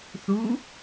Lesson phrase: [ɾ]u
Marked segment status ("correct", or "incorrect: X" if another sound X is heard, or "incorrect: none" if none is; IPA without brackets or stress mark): incorrect: θ